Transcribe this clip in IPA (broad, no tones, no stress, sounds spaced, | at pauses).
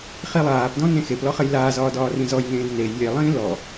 χ i lˠ aː p d ɔ̃ n ẽ x e p l ɔ χ ɘ j l aː z ɒː d ɒː r ĩ z ɔ j ŋ ẽː d n e j lʲ e lˠ ĩː l ɔ